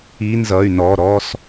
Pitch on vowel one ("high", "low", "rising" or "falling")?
rising